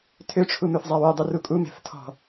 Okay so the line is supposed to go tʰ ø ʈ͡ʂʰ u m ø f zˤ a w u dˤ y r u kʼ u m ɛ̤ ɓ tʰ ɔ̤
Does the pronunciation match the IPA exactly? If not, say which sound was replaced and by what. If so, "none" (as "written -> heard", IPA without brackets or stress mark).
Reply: ɓ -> f